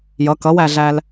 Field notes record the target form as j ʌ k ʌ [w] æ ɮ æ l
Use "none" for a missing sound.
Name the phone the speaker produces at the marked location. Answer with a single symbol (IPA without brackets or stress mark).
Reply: w